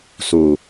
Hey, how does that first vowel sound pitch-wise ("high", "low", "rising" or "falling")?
low